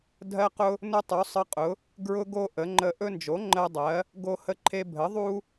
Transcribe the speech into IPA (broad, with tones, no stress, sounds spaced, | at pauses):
dʱ ɜ˦ q ʊ˦ | n ʊ˦ tˤ u˩˥ sˤ ə˦ qʼ ʊ˩˥ | ɡ ɹ ʊ˦ ɡ o˦ ʔ ə˩˥ ŋ͡ǃ ə˦ ʔ ɵ˦ n d͡ʒ o˩˥ ŋ͡ǃ ɜ˦ dˤ ɜ˩˥ | ɡ o˦ h ə˦ ǃʰ e˦ bʱ ə˩˥ ðˤ u˦